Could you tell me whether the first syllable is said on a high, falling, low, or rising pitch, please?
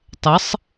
rising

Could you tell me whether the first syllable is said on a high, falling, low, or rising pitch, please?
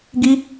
high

